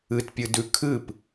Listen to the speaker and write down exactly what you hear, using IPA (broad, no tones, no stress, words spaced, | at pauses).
ɨtpʲɨdʉ kʰɨp